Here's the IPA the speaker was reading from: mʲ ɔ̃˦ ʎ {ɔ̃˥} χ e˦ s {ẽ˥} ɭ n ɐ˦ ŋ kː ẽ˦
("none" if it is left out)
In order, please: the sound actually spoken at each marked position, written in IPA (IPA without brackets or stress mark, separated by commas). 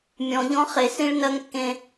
ɔ̃˥, ĩ˥